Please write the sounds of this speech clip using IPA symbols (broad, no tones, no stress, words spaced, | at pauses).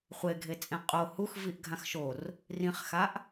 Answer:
χʷeɡʱet͡sʼẽ qʼo hux viʔɡʱãxʃor | rĩχxaʔ